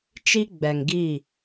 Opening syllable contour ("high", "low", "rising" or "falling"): high